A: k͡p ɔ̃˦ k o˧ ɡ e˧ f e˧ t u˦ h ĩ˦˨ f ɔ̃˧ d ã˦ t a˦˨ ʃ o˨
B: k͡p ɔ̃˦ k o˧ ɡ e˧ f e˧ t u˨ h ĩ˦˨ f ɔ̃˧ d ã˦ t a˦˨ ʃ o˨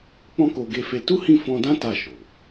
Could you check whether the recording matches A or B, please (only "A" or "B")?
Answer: A